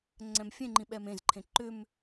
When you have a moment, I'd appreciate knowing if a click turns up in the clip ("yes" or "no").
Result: yes